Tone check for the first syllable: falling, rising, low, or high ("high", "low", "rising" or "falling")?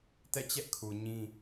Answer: falling